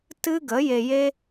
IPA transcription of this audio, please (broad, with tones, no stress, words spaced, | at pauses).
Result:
tɨ˦ɡə˨˦ je˧je˦